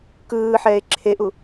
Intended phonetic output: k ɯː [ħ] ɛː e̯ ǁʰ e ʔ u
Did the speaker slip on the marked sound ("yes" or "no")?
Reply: no